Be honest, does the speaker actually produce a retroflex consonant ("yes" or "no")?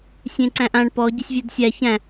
yes